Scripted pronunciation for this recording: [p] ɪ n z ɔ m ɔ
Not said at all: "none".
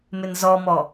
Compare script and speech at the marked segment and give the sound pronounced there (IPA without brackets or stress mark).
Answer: m